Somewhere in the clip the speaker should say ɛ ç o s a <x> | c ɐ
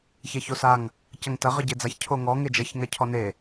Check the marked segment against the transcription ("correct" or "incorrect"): incorrect